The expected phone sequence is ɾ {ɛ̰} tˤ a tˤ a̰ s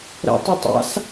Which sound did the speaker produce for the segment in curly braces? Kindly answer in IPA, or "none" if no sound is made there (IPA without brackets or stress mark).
ɛ̰